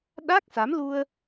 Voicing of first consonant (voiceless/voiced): voiced